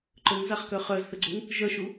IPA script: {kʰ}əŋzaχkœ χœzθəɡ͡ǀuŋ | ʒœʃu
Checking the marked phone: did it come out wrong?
yes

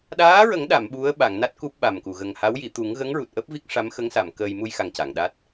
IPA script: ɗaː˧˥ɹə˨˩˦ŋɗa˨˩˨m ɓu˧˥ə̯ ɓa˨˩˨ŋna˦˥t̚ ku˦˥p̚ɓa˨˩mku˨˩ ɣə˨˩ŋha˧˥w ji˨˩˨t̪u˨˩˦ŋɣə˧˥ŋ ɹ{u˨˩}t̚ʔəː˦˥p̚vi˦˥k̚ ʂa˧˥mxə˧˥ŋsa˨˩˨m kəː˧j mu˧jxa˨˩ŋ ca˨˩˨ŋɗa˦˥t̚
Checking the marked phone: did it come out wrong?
no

